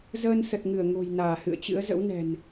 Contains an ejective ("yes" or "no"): no